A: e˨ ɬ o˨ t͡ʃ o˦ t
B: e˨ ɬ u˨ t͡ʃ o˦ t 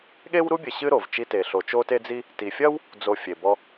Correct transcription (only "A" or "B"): A